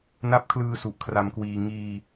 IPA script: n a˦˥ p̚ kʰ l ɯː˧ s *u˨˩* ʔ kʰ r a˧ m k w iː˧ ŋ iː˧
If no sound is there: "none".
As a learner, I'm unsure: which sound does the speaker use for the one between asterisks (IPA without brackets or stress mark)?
u˨˩